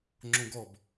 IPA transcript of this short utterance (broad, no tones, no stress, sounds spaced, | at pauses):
ŋ͡ǁ õ ɡ ɔ b